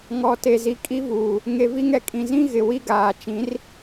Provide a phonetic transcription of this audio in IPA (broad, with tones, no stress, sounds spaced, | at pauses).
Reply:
ŋ ɔ˨ t e˨ z i˨ kʼ i˦ v uː˨ | ŋ e˨ v i˦ ŋ ɛ˦ kʼ ĩ˨ z ĩ˦ ɣ ɪ˨ w i˦ ɡ aː˨ t͡ʃ ĩ˨˦ r